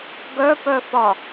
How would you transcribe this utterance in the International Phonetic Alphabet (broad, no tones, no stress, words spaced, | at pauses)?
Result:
ɡœpœfɒ